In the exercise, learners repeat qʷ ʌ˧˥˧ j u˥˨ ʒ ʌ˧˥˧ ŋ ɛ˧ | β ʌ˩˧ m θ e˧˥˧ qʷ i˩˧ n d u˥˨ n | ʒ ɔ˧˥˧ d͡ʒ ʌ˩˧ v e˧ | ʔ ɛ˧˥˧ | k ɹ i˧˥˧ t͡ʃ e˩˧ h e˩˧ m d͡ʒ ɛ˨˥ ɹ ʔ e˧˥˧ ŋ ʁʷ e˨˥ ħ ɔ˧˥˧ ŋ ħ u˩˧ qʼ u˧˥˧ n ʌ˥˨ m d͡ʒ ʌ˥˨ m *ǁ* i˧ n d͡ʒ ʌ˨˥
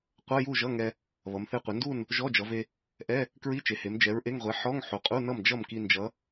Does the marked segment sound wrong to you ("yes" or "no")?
yes